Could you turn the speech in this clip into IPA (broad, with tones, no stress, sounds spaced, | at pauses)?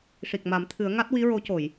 ʂ i˨˩ k̚ m a˨˩˦ m t̪ʰ ɨ˨˩˦ ə̯ ŋ a˦˥ t̚ w i˧˥ ɹ o˧˥ c o˨˩˨ j